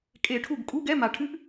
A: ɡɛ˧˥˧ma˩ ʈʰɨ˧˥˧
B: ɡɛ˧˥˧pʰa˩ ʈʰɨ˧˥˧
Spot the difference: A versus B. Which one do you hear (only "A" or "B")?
A